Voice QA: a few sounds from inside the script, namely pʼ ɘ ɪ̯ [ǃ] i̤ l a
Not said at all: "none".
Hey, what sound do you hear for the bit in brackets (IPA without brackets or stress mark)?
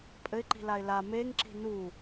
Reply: ǃ